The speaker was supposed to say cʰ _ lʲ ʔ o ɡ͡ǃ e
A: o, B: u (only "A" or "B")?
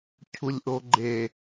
B